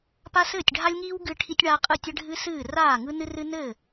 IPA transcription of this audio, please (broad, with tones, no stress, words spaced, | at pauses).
pa˦sɘː˥˩tʲɖʱa˦lʲŋiː˦w ɡɨ˦ʈʰi˦tʲɳaː˦ qʼɯ˥˩tʲɘ˦ɖʱɨ˦sɨː˥˩ raː˥˩ŋɯ˦nɨ˦ rɨ˦nɘː˥˩